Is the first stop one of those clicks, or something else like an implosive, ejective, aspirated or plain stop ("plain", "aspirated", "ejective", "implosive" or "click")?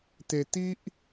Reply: plain